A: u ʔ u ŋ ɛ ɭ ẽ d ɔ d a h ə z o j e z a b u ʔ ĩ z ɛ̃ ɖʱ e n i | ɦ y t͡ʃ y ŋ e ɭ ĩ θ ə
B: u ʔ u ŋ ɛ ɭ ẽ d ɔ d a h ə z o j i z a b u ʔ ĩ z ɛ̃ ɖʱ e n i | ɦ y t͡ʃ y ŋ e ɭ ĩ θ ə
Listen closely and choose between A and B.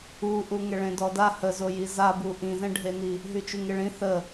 B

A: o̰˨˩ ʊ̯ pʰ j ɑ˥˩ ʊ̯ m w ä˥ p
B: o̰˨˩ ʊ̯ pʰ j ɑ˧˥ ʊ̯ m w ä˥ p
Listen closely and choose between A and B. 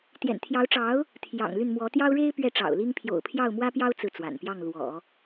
A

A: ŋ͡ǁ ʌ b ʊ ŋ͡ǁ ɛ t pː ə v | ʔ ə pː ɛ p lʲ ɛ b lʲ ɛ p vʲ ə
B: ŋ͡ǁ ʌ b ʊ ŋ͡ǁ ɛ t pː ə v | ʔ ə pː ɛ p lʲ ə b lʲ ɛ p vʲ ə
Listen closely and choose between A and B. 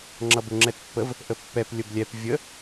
B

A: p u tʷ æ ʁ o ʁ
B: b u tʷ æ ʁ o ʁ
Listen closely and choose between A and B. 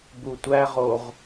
B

